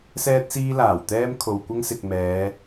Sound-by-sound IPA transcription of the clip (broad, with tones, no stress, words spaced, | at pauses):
sɛː˥t̚siː˥laː˨˩wt̪ɛː˥m kʰo˨wkʷɐ˥ŋsɪ˨k̚ mɛː˨˧